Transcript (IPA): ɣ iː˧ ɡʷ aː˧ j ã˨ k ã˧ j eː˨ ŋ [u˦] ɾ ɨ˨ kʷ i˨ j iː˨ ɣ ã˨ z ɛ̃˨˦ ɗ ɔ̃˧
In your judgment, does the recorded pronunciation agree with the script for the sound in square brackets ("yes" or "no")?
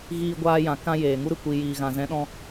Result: yes